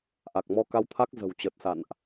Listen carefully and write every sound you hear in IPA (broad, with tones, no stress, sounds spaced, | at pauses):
ʔ a˨˩ k̚ m ɔ˧ k a˧ w t̪ʰ a˦˥ k̚ z ə̤˨˩ w t͡ɕ ə˨˩ t̚ s a̰˧˨ n ʔ